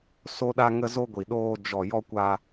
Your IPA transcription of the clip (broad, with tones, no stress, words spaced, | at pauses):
so˧ɗa˧ŋə˧zo˧ ɡʷi˨ɗoː˧ d͡ʒɔ˨jɔ˧kʷa˧